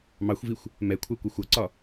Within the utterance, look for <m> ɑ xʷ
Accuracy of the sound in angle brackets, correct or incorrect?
correct